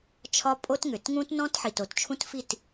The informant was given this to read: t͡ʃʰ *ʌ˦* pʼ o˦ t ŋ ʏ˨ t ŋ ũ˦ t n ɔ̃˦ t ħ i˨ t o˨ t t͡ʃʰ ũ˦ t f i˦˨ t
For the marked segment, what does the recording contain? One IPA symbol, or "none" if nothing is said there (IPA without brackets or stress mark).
ɒ˦